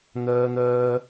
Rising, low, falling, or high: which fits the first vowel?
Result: high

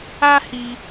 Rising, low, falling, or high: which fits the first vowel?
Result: high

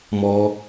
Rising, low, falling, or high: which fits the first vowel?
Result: high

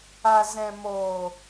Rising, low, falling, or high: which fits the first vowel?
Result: low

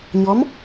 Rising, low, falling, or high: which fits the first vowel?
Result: rising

